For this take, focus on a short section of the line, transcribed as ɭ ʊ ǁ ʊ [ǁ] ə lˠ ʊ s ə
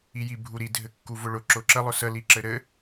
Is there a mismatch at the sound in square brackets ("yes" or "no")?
no